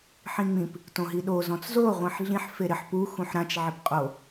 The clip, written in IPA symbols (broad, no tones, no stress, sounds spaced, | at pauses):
ħ ĩ ŋ͡m ĩ p | t õ ɦ i ɗ o z ɔ̃ t͡s z o ʁʷ ĩ ħ ɮ ĩ ħ f e ɾ ɪ ħ p u x ũ ħ ɾ ã t͡ʃ ʕ ɪ p qʼ o